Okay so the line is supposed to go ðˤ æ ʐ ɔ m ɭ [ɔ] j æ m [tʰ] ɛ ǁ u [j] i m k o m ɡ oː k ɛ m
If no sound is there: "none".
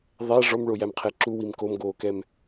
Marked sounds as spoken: o, qʰ, w

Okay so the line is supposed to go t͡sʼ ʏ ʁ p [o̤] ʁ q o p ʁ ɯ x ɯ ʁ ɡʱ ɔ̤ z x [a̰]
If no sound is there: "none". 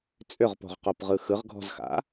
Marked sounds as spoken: o̤, a̰

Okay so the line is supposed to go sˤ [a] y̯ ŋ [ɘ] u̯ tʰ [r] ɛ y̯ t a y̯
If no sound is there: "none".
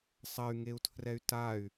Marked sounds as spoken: ɐ, e, r

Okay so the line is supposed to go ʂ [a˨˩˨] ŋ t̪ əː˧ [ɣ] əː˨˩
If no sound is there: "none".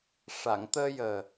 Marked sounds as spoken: a˨˩˨, j

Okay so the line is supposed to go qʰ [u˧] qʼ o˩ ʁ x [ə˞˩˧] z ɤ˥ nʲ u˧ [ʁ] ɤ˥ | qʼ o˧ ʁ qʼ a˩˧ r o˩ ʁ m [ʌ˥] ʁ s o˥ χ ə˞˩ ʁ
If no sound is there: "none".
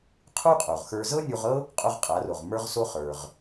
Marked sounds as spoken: u˥, ə˞˧, ʁ, ə˞˥

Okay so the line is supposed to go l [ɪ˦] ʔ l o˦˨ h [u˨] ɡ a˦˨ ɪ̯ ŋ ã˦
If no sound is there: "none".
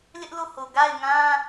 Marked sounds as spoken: ɪ˦, o˨

